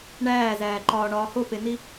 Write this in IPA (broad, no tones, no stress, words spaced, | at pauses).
ɳæːzæːǃɒːɳɒː hopeni